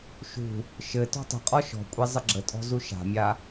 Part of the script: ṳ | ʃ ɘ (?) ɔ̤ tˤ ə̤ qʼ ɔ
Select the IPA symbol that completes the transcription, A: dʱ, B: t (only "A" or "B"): B